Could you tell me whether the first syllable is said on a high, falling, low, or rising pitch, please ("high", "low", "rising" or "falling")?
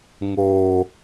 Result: low